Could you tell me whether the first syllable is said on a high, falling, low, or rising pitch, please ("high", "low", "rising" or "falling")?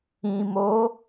low